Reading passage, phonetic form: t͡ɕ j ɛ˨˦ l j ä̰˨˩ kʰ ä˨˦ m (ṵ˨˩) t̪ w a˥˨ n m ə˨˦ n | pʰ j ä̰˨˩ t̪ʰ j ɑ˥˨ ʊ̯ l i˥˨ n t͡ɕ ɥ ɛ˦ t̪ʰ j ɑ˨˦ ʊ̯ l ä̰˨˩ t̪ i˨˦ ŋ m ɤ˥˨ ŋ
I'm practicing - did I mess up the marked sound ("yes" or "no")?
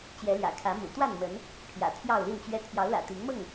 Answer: no